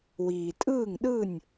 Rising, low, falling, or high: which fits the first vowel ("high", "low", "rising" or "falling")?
low